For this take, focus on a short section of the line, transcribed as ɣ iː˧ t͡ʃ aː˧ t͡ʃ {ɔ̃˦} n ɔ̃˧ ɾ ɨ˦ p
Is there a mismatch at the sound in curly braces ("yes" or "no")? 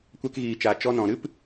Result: yes